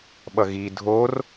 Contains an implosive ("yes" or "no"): yes